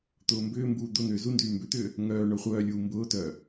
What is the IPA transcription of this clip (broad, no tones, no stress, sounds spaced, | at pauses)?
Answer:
t̪ ʊː m b ʏː m b uː d̪ ʊ n̪ ʏː z u n d yː m b ʏ t̪ ʏː | ŋ œː ɳ œ χʷ œː lʲ uː m b ʊː t œː